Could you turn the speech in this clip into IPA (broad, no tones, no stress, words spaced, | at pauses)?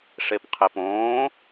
ʂepqʰɛpõː